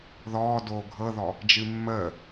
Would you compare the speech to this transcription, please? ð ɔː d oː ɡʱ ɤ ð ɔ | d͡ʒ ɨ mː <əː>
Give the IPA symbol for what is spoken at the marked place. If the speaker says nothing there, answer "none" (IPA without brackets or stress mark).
əː